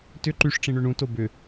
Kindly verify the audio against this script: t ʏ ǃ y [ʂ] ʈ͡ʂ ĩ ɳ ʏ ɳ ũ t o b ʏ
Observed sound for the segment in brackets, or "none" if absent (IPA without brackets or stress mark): ʂ